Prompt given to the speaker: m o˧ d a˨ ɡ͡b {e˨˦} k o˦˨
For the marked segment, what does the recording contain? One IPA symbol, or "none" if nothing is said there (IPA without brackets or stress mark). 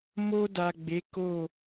e˨˦